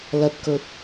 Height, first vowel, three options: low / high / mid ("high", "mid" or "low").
low